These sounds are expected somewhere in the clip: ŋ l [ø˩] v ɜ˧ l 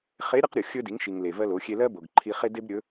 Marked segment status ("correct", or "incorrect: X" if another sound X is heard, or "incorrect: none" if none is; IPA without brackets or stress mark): incorrect: e˩